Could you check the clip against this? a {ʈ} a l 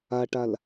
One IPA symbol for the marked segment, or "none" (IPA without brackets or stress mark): ʈ